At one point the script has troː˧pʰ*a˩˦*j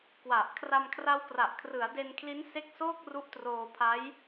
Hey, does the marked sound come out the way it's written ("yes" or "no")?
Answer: no